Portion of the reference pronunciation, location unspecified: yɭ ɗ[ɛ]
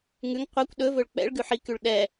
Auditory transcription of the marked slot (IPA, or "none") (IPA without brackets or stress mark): ɛ